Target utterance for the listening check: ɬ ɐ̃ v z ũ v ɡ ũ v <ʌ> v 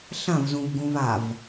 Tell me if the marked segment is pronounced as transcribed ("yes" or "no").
no